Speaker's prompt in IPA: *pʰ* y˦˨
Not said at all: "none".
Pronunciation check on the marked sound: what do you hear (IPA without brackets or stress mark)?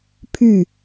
pʰ